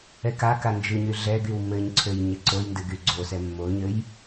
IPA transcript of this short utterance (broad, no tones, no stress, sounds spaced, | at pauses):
ɛ k a k a n d͡ʒ ɨ ɲ y ɮ ɛ ɡ y w m ɘ ɲ ǀʰ ø j ɲ ɘ ǀ o j n d ɨ ɡ y ɡ͡ǀ o s ɛ mː o ɲ ɘ j